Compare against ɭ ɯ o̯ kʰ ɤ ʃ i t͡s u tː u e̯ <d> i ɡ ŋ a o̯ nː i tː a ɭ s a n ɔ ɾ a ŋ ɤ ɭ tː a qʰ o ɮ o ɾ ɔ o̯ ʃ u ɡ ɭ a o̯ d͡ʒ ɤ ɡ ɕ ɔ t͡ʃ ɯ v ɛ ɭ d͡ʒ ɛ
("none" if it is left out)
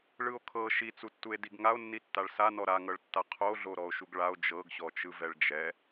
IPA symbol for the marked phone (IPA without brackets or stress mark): d